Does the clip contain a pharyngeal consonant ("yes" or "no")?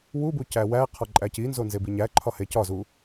no